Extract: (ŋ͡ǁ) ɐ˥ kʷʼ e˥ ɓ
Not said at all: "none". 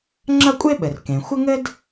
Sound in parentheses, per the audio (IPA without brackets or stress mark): ŋ͡ǁ